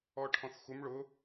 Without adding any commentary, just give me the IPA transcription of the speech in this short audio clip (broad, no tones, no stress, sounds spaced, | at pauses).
ɔ ʈʰ ɔ̃ θ x u m ɭ ʊ